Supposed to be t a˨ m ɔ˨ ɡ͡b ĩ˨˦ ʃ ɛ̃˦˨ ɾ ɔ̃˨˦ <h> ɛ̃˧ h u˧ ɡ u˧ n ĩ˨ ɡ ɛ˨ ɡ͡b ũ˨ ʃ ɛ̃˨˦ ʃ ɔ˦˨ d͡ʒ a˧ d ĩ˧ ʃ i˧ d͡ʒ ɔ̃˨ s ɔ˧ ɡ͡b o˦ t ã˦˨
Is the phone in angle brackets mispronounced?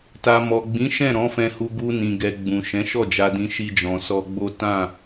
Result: yes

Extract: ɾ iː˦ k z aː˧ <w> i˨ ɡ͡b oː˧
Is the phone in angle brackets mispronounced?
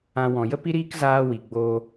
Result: no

